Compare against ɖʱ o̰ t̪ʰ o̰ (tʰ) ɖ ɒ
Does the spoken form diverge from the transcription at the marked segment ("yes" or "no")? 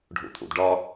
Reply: yes